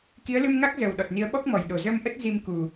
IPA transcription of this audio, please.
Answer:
k i˨˦ ə̯ l ɨ˧ m ŋ a˦˥ k̚ z ə˨˩ w ɗ ɔ˨˩ t̚ n i˨˦ ə̯ ɓ ɔ˦˥ k̚ m ɔ˧˩ j ɗ o˧˩ z ə˧ m ʔ ə˦˥ t̚ z i˧ m k u˨˩

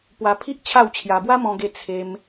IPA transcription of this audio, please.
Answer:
p w a˧ pʰ i˦ ʔ t͡ɕʰ a˥˧ w t͡ɕʰ j a˧ b w a˦ m ɔ̃˧ ɡ e˧ t͡sʰ e˧ m

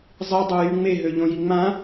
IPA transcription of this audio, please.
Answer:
zˤ i dˤ ø j y ŋ͡m e ɦ ø ʎ õ j i ŋ͡m ã

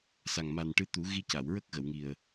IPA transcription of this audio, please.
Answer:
s a˨˩ ŋ m a˨˩ n ʈ ɨ˧˥ t̪ u˨˩˦ ɣ i˧ c a˨˩˨ w ɹ ə˦˥ k̚ ɣ ə˨˩˨ w ŋ i˨˩ ə̯

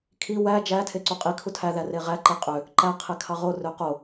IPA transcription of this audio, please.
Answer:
kʰ i w æ d͡ʒ æ tʰ e ǀ u qʼ i kʰ u tʰ æ ð æ r e ʁ æ ǃ e qʼ ø | ǃ æ qʰ e kʰ ɑ ʁ o r ø q o

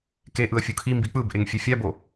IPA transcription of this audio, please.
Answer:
k e ʔ ɯ ə̯ fʲ u kʰ i m b i k͡p ɯ b ʔ e ŋ fʲ e fʲ a b o

